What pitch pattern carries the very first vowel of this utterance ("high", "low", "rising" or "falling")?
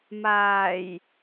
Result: low